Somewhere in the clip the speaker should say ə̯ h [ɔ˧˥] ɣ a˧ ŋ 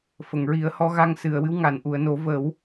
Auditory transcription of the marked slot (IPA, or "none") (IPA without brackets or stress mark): ɔ˧˥